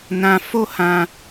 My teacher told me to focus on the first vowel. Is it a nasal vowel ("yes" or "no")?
yes